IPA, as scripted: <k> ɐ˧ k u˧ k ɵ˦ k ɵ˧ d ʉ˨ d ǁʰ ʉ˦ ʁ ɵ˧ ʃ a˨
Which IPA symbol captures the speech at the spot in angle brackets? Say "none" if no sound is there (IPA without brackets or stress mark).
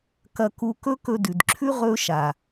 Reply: k